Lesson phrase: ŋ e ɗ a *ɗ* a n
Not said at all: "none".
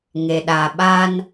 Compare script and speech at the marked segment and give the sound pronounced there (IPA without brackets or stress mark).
ɓ